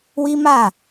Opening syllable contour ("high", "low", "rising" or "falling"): high